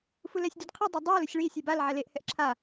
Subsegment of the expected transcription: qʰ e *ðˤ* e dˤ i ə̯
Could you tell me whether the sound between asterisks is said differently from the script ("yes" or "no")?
yes